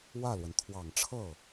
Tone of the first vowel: falling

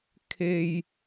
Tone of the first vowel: low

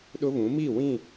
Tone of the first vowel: high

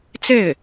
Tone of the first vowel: falling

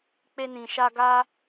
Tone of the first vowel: high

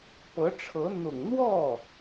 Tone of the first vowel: rising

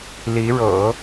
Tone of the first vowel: rising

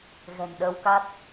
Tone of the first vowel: low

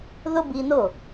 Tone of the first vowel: high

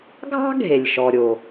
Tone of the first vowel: high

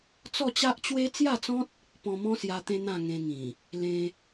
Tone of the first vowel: falling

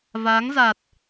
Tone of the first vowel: rising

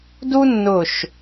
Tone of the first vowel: high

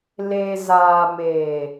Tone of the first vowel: low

